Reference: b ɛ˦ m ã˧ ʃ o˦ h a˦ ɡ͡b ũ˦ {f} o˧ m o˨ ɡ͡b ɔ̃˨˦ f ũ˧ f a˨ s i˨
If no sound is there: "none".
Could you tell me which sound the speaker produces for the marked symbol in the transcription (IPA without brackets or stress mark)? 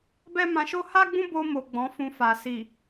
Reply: b